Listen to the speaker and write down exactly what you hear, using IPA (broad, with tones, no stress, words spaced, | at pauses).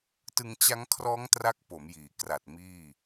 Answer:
tɯ˧ŋt͡ɕa˦˥ŋkʰrɔː˦˥ŋ tra˦˥k̚po˩˦mjiː˩˦kra˨˩t̚ miː˥˩